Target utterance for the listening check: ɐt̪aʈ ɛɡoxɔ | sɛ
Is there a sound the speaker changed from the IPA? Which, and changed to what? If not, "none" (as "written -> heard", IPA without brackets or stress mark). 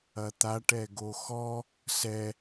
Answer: none